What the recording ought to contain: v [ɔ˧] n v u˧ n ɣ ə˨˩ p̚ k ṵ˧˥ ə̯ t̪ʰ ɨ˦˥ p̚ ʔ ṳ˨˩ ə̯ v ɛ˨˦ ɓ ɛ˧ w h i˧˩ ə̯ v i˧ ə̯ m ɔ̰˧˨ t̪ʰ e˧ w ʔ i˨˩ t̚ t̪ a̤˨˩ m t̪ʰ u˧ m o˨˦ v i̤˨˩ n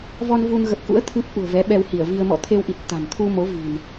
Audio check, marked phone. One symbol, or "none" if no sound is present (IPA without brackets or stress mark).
ɔ˧